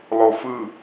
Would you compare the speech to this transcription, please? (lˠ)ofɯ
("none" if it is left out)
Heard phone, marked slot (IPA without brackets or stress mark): lˠ